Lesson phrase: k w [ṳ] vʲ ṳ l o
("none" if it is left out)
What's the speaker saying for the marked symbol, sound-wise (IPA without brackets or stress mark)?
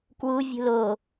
u